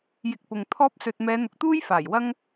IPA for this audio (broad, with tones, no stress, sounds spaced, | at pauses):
j ɪ˧ k̚ p ʊ˨ ŋ t̪ʰ ɔː˥ p̚ s ɵ˨ t̚ m ɛː˨˧ n̪ ʊ˨ k̚ t̪ uː˥ j f aː˨˩ j w ɐ˥ ŋ